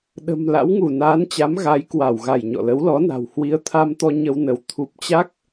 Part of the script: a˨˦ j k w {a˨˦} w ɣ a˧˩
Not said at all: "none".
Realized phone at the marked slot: a˧˩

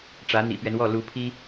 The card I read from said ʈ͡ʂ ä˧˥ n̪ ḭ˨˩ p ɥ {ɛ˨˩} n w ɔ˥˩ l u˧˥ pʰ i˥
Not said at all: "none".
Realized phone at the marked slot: ɛ˦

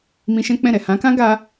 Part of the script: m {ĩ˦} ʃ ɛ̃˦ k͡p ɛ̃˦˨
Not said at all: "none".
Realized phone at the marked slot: ĩ˧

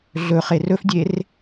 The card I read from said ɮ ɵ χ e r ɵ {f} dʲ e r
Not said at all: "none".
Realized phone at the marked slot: f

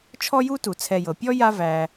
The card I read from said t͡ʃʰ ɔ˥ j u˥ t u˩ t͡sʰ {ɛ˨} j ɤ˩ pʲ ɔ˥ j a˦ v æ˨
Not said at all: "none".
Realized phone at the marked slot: ɛ˨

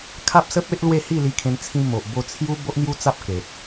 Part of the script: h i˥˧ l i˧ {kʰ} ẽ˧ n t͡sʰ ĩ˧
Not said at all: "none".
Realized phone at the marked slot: kʰ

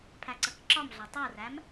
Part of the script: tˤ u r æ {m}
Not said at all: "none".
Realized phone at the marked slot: m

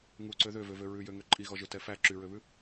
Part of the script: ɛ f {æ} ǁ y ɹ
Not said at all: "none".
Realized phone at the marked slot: æ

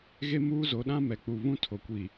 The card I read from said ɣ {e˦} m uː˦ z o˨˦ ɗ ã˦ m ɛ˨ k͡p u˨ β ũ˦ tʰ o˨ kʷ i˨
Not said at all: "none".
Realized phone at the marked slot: e˦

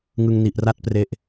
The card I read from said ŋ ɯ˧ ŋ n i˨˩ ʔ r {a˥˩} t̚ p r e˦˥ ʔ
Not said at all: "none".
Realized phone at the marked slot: a˥˩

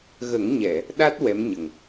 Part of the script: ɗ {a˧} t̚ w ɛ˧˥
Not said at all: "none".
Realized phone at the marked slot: a˦˥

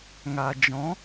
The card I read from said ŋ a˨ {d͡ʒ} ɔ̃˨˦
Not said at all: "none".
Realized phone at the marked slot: d͡ʒ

